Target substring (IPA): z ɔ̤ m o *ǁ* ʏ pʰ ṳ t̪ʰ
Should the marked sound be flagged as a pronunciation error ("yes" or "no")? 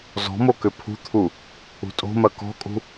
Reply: yes